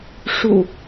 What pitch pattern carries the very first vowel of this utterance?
low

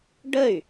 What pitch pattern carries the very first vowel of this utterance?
falling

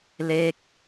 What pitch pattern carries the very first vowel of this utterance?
falling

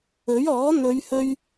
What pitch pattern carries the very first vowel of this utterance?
rising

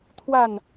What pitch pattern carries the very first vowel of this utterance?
falling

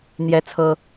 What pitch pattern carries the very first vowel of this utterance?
high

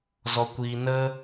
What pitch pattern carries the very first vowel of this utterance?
low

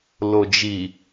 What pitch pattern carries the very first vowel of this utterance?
low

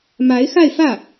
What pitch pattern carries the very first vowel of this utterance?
rising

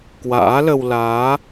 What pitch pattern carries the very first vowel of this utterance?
rising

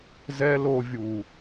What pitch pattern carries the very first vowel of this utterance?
high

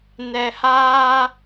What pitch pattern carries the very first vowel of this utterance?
high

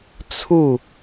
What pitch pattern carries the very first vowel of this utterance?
falling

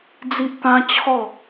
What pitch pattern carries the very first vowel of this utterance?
high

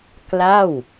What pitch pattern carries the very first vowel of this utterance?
falling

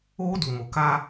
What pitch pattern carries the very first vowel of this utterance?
high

